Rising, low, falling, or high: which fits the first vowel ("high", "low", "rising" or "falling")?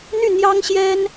falling